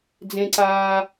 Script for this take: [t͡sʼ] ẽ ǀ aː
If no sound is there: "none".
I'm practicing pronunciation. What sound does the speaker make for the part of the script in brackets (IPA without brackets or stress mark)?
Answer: d͡z